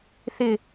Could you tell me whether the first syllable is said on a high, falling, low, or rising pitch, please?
falling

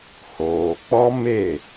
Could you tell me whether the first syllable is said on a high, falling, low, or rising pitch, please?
low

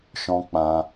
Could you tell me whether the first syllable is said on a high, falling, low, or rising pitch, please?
high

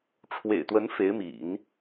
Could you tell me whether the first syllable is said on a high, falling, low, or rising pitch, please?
low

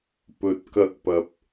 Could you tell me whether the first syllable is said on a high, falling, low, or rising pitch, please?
low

